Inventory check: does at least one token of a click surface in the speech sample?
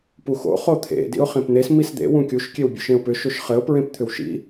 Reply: no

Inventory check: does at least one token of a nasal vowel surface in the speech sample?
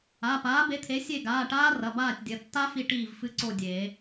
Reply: no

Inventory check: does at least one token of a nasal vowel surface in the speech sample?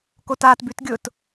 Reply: no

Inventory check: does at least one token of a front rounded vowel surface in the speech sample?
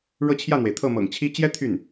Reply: yes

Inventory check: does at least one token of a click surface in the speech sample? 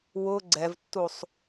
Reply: yes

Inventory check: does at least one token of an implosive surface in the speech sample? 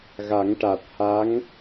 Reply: no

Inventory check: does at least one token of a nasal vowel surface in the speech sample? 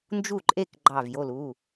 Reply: no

